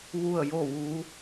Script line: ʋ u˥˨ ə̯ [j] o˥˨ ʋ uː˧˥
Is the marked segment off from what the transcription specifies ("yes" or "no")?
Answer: no